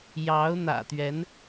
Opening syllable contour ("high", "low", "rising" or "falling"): rising